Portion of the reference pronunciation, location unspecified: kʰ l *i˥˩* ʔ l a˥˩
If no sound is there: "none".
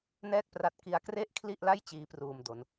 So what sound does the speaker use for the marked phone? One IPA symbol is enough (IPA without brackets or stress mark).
i˥˩